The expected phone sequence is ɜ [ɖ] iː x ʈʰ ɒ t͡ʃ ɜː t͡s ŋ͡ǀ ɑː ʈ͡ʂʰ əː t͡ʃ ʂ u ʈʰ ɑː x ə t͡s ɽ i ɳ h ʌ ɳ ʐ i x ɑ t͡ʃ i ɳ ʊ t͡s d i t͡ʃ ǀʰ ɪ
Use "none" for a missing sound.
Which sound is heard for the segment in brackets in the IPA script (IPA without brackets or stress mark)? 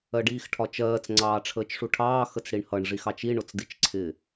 ɖ